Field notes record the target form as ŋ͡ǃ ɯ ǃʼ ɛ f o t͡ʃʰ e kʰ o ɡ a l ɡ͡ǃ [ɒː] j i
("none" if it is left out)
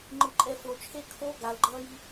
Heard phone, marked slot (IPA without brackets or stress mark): ʌː